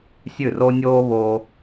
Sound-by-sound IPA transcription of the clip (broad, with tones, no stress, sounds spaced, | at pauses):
sʲ ʉ˥˩ r o˥ nʲ oː˥ β o˧